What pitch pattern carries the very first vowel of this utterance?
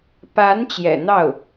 rising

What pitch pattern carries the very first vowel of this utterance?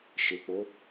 low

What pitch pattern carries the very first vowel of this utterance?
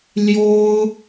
high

